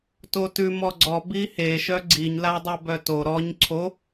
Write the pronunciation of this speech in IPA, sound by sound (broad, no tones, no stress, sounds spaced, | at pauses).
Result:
t o t ʉ m ɔ ɡ͡ǀ ɔ b i h e ʃ œ ɡ͡ǀ i ɲ l a dˤ o b œ t o ɾ ɔ ɲ ǀʰ o